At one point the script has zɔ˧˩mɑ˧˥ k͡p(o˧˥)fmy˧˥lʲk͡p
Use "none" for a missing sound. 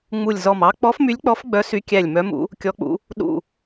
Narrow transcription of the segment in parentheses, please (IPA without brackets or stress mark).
ɔ˧˥